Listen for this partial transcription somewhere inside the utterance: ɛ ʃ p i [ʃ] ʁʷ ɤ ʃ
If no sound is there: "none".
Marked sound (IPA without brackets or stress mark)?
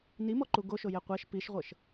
ʃ